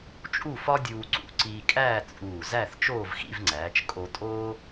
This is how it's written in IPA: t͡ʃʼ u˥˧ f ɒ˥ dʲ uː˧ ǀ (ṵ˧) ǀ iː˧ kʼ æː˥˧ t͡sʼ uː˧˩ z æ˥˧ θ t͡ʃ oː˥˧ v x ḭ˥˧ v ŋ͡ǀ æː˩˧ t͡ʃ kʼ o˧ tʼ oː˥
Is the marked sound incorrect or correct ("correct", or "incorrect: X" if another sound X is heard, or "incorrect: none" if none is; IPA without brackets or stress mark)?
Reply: correct